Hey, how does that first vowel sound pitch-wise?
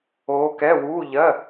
rising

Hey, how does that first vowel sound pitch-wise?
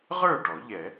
falling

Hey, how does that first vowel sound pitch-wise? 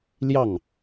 falling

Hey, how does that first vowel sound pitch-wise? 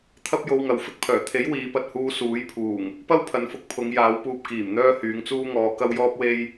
high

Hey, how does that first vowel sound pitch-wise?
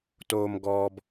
high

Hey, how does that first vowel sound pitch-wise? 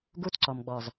high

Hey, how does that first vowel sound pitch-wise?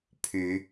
rising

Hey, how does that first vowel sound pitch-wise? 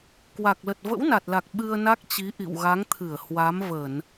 low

